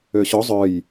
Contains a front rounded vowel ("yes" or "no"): yes